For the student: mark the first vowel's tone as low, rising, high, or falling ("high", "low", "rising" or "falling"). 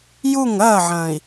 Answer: falling